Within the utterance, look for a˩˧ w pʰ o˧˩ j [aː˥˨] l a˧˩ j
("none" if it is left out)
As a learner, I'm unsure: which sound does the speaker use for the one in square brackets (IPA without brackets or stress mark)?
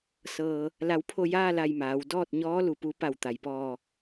aː˥˨